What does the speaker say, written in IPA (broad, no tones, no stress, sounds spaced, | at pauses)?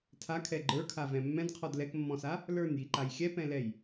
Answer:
tʰ a kʰ ɛ ɡ͡ǃ ə˞ kʰ a v ɛ̃ mː ɛ̃ d qʰ ɔ d l ɛ k mː ɔ̃ s a | l ə˞ n j i ǃ a j xʲ ɛ p ɛ̃ l ɛ j